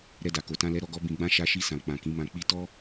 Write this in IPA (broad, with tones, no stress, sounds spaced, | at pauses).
ɾ ɛ˧ d a˨ k o˨ t ã˧ l ɛ˦ ɾ ɔ˦ ɡ ɔ˦ b ĩ˧ ɡ͡b ã˦ ʃ a˧ ʃ i˧ s ã˨ k͡p ã˨ k ĩ˨˦ m ã˧ k͡p i˦ t ɔ˦